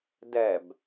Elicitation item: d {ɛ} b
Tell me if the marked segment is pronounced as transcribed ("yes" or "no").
yes